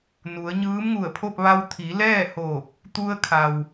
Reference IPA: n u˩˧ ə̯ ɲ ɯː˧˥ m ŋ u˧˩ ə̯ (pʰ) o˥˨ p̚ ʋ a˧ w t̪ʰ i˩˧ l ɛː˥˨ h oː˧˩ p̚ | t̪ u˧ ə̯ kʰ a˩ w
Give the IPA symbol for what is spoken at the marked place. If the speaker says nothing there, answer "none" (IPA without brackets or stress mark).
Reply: pʰ